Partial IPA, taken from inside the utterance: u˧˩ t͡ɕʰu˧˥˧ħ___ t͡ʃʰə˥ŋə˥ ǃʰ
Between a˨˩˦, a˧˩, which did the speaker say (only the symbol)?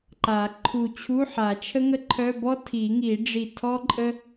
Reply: a˨˩˦